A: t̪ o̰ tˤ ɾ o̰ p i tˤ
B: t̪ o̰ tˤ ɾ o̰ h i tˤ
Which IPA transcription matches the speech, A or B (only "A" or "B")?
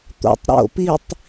A